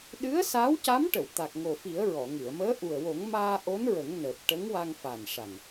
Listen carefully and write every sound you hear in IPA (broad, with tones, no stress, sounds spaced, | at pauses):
ɗ ɨ˧˥ ə̯ s aː˧˥ w c a˧˥ m ʈ ə˨˩˨ w t̪ a˨˩ k̚ ŋ o˨˩ f i˨˩˦ ə̯ ɹ ɔ˨˩˨ ŋ ɨ˨˩˨ ə̯ m əː˧˥ ʔ u˨˩ ə̯ w o˨˩˦ ŋ m aː˧ ʔ o˧˥ n ɹ ə˨˩˦ ŋ n əː˨˩ p̚ ʈ ə˧˥ ŋ w a˧ ŋ f a˨˩ n ʂ a˨˩ ŋ